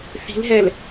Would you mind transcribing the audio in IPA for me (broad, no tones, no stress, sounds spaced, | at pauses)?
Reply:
θ i̤ l ɦ ɛ l